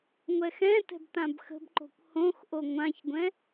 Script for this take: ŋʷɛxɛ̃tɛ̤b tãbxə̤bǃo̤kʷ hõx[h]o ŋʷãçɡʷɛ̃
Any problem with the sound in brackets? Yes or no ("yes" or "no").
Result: yes